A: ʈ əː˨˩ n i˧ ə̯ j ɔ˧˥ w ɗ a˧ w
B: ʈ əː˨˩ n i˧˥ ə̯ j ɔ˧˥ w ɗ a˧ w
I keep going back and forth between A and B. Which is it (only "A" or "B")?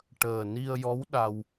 A